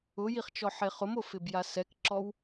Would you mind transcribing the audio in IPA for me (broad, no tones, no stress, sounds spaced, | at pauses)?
ʊ j i χ t͡ʃ ɔ ħ e χ ʊ m o f ɪ b j a s ɛ k ǁ ɔ w